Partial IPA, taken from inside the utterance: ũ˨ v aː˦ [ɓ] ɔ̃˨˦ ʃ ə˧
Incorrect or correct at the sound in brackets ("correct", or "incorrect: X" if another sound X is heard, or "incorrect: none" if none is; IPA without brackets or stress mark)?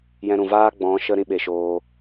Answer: incorrect: ɡ͡b